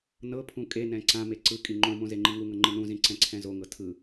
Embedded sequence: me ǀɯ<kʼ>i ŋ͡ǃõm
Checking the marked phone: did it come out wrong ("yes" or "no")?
no